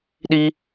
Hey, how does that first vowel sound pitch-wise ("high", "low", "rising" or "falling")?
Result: high